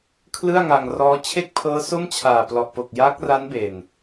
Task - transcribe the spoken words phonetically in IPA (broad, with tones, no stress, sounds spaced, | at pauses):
kʰ l ɯ˥˩ a̯ ŋ a˧ ŋ r ɔː˦˥ t͡ɕʰ e˥˩ k̚ pʰ ɤː˦˥ s o˥˩ m t͡ɕʰ aː˨˩ p l ɔ˨˩ ʔ p o˨˩ k̚ j aː˦˥ k̚ r a˦˥ n b e˨˩ n